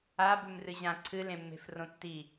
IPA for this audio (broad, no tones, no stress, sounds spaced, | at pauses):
a b ʉ m r ɨ ʑ ã ǀʰ ɨ l ẽ mː e̤ f r õ tː i